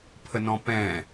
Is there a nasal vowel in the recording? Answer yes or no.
yes